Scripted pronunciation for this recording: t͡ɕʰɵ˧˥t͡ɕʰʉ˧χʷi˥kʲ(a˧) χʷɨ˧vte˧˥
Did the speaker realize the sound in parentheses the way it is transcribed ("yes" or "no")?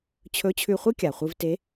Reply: no